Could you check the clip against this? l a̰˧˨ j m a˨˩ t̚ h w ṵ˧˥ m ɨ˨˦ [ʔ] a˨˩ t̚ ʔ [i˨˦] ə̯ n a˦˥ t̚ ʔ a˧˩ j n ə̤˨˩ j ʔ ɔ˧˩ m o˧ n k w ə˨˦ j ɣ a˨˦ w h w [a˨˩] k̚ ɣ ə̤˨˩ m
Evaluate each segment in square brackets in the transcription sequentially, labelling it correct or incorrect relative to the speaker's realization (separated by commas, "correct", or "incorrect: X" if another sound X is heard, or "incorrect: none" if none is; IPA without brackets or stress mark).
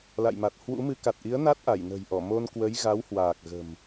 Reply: incorrect: k, correct, incorrect: aː˨˩